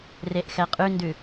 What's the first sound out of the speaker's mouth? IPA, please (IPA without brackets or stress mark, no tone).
r